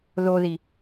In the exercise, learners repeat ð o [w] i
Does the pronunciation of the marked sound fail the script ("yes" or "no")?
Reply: yes